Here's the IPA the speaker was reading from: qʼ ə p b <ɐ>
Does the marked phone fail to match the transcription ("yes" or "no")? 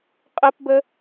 yes